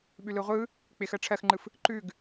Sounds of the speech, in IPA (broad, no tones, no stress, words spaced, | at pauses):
ɓʉlɯʁʷɯ | k͡pɪx ɜʈ͡ʂʰɜxŋ͡ǃɯf | ǃʉɡ